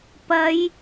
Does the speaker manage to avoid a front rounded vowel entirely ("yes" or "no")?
yes